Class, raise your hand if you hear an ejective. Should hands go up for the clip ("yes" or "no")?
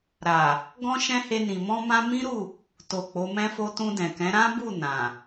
no